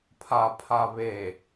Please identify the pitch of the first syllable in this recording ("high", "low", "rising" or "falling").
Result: low